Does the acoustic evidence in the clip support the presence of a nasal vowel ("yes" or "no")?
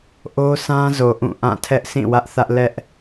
yes